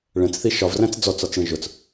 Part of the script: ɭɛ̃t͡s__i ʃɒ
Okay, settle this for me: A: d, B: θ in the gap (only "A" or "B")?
B